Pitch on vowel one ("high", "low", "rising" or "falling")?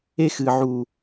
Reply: high